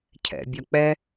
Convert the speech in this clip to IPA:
cʰɛ̰bʲɒk͡pɛ

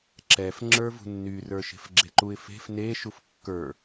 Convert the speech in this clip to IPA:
ǁɛf ŋ͡ǁə˞vṳnːy rə˞ʃe̤fɡ͡ǁeǃuɪ̯ fe̤f ne ʃufkːə˞

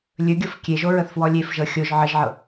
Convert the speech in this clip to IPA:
lʲɵɡʲɤf kʲeʒo ɹəθfwɔlʲefʒɤ xʲoʒ ʕəʒʕɤ

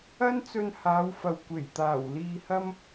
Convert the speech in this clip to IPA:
ɐ˥nt͡sɵ˧nhaː˨˧wfɐ˨w kʷe˨˩jt̪aː˨˩w liː˧hɐ˥m

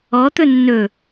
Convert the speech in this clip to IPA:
ɔt̪ɵ nːɵ

